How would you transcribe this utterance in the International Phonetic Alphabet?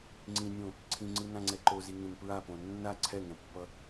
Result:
ŋ͡ǀ ĩ nʲ õ | ǀʰ ĩ ŋ͡ǀ ɯ n ã ŋ͡ǀ ɛ ǃ o z i ŋ ẽ n p ɹ a p õ nː a ǀʰ ɛ ŋ ɛ̃ pː ʌ

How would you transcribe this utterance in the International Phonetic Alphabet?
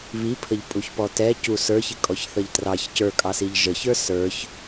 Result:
β i pʰ ə ʎ pʼ u ç p ɔ t ɛ c u s ə˞ ç ɪ kʼ ɔ ç θ ʌ ʎ t r ɑ ç c ə˞ kʼ ɑ s i ʎ ʒ ə ç ə˞ s ə˞ ç

